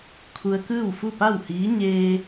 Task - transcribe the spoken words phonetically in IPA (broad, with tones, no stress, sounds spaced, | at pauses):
kʰ u˧ ə̯ k ɯː˥˨ w f u˥˨ p a˥˨ w h iː˧˥ ɲ eː˧